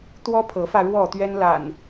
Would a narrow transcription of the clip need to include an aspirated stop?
yes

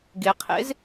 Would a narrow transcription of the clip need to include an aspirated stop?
yes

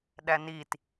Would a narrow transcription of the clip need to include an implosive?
yes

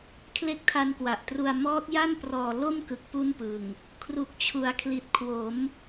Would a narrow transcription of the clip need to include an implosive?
no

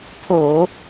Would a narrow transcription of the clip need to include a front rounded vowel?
no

